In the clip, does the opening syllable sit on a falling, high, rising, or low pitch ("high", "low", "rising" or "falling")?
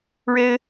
high